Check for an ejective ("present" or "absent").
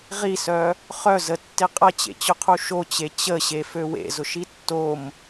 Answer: present